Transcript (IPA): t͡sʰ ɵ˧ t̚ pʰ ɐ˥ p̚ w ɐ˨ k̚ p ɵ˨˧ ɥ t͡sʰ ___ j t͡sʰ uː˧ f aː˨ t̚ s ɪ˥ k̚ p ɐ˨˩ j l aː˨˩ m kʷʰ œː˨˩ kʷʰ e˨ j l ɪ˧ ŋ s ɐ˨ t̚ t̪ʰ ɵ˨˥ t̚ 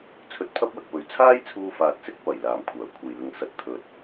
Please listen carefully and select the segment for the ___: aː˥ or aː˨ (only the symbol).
aː˥